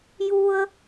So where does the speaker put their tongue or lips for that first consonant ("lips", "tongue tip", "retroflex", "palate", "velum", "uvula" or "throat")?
palate